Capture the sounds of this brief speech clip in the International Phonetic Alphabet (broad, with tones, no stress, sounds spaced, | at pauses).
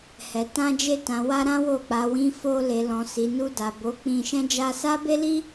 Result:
h ɛ˨ t ã˧ d͡ʒ e˧ t ã˨ w a˧ ɾ ã˦ w o˦˨ k͡p a˨ w ĩ˧ f o˧ l e˨ l ɔ̃˨ s i˨ n u˧ d a˨ b o˨˦ k͡p ĩ˧ ʃ ɛ̃˦ d͡ʒ a˧ s a˦ b e˦ l i˦